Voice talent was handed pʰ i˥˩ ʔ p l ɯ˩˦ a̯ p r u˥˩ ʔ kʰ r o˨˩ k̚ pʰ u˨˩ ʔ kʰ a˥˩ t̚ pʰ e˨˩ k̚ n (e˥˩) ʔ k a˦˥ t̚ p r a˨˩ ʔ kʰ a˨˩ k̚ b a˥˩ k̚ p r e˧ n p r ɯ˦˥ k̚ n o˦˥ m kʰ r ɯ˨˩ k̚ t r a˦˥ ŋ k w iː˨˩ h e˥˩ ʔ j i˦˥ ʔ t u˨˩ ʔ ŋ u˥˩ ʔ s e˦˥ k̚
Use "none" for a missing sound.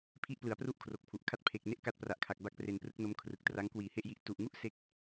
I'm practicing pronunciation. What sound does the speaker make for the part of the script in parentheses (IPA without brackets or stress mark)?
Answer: e˥˩